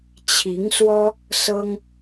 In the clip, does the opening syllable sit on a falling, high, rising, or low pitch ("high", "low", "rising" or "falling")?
rising